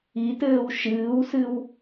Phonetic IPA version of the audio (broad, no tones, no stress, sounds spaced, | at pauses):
i t ɘː w ʃ ɨː w s ɨ w